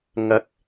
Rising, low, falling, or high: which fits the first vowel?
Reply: rising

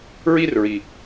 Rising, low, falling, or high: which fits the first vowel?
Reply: high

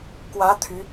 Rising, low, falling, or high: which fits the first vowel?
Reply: rising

